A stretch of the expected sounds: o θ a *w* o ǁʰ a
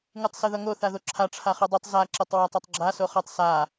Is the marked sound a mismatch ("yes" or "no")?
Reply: yes